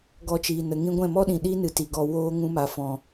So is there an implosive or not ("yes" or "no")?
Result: yes